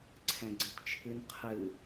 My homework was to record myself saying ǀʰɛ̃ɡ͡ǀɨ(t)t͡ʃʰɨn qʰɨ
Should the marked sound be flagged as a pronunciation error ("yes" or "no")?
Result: no